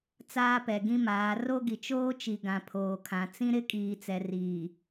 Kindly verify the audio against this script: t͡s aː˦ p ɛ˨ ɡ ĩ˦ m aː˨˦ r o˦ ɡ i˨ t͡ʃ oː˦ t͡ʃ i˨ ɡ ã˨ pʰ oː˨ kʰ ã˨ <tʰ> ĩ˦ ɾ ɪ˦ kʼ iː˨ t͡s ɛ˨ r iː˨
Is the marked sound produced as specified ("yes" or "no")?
no